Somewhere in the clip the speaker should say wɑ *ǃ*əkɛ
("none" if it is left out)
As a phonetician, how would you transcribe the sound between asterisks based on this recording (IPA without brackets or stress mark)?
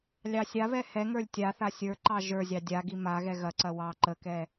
ǃ